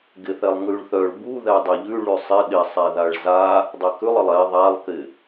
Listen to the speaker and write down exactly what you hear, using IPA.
ɡ ɪ θ ɛ lˠ ŋ ʉ ɭ θ œ ɭ b u ð ɛ dˤ ɪ ʎ ʉ ɭ ʉ sˤ ɪ ɗ ɪ sˤ ɛ ð a ɭ z a | dˤ ɛ k ʉ lˠ ɪ lˠ ɛ ðˤ a lˠ k ɪ

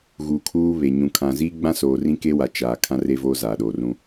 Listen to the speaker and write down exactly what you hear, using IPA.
ɣ uː˨ kʰ uː˦ β e˨ ɲ ũ˨ kʰ ã˨ z iː˦ ɡ͡b ã˦ s oː˨ r ĩ˦ k e˦ w a˨ t͡ʃ aː˨ kʰ ã˦ r e˦ v oː˦ z aː˨ ɗ oː˨ r ũ˦

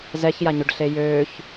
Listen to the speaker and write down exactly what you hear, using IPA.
z ɛ ç j a ɲ ø ɖ ɬ eː j øː ç

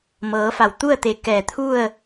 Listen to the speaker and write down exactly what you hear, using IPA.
m ɤː˩˧ f a˩ w t̪ u˥˨ ə̯ t̪ e˧˩ k ɛː˧˩ t̪ʰ u˥˨ ə̯

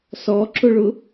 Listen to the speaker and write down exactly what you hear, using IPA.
s ɔ ǁ ʊ ɭ ʊ

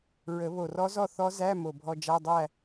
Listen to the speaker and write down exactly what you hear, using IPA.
ɹ ə˨˩˦ β o˨˩ r ɔ˦˥ z ɔ˥˨ θ ɔ˦˥ z æ˧˥˧ m o˨˩ bʱ ɔ˧ d͡ʒ a˧˥˧ dˤ æ˥˨

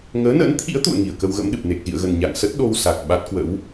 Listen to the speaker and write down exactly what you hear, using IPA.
ŋ əː˨˦ n ə̰ː˧˥ n t̪ʰ ḭ˧˥ ə̯ t̪ ṵ˧˨ ə̯ ŋ i˧˩ ə̯ k ə˧ w ɣ ə̰˧˥ m ɗ ɨ˨˩ p̚ n e˨˩ k̚ z ḭ˧˨ ə̯ ɣ ə˨˩ n ɲ a̰˧˨ ŋ s ə˦˥ t̚ ɗ o˧ w s a˨˩ k̚ ɓ a˦˥ t̚ k w ə̰˧˥ w

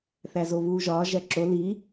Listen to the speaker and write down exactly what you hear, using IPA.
θ æ z o β uː ʒ ɒː ʒ æ ǁ o l i

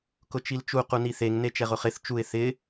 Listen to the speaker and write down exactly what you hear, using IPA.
k ʊ t͡ʃ i l t͡ʃ u q u n i θ e ŋ n e t͡ʃ ɛ ʁ ʊ χ ɪ θ t͡ʃ u ɪ̯ θ ɪ

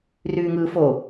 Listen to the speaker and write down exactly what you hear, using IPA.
r yː ŋ ɯː f o

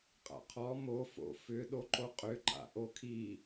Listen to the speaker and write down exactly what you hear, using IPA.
qʼ a̰ qʰ ɔ m o f o̰ f ʏ ɗ o ǃ o qʼ ʏ ǃ a̰ ʔ o kʰ i

